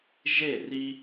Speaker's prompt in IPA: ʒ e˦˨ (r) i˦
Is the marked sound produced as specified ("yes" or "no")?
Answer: yes